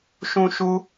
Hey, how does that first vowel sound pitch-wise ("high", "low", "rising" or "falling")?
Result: high